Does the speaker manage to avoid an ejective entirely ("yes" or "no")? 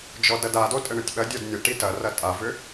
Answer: no